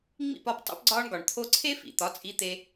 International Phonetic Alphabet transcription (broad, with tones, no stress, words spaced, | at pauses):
ŋ͡mḭ˥˩pɒ˥˩p tˤo̰˥pɡ͡ǀɒː˥ɳɡɒ˩ɳt̪ʰo˥ ǀʰe˥fḭ˩ t̪ɒ˩˥t͡sʼi˧t̪e˧